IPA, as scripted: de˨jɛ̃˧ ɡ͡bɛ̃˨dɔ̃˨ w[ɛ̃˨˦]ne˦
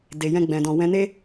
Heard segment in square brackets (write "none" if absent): ɛ̃˨˦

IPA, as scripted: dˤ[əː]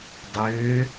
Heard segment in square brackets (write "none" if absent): øː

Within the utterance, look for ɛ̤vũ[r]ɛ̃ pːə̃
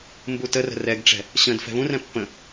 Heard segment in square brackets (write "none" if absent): r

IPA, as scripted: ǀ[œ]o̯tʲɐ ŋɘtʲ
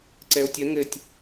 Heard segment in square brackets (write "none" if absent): ɛ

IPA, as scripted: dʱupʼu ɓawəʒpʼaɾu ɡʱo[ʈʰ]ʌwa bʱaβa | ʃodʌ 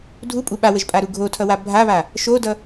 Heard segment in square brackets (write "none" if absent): tʰ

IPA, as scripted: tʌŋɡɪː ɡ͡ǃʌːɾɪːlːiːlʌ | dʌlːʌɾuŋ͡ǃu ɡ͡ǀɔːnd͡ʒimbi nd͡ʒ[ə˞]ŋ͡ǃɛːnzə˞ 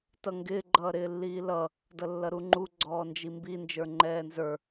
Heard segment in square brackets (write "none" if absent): ə˞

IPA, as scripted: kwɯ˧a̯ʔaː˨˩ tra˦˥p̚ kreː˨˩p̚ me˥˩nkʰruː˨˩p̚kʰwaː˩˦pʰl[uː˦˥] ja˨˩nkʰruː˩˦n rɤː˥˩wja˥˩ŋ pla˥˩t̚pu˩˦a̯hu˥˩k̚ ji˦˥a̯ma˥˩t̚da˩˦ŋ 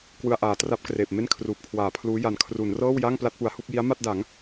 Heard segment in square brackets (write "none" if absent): uː˦˥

